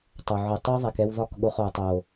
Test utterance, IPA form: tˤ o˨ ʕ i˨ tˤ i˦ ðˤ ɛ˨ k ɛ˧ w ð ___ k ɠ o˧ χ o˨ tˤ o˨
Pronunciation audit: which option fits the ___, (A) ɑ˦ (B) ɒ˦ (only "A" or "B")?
B